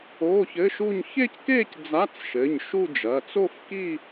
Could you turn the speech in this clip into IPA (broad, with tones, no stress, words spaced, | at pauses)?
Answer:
oː˧˥˧çɘ˧˥˧ʃu˥˧ɲ çe˥˧ckeː˥˧c d͡za˧˥˧t͡sʃɘ˩˧˩ɲ ʃu˥˧d͡ʒɐː˩˧˩t͡s o˥˧fki˥˧